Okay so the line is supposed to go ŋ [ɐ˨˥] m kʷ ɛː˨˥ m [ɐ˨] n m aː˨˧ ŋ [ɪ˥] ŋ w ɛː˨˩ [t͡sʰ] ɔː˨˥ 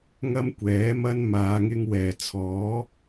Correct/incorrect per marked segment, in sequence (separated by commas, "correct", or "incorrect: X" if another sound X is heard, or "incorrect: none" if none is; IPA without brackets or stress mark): incorrect: ɐ˥, incorrect: ɐ˥, incorrect: ɪ˧, correct